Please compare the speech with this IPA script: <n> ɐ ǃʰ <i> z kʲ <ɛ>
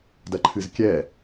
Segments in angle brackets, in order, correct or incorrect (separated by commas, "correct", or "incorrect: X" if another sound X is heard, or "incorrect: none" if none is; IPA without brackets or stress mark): incorrect: d, incorrect: ɨ, correct